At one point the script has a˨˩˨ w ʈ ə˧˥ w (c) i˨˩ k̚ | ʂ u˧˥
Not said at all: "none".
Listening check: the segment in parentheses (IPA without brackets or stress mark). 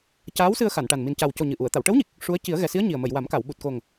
ɲ